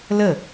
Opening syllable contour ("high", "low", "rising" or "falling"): falling